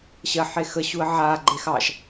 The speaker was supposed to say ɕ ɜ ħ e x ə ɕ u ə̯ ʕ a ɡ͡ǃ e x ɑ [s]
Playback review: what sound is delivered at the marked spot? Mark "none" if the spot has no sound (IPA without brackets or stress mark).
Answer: ʃ